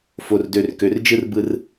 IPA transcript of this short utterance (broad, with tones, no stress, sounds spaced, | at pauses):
f o˨ r d ø˨ r k ø˨ r d͡ʒ ɯ˦ r b ɯ˦ r